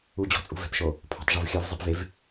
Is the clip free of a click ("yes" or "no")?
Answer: yes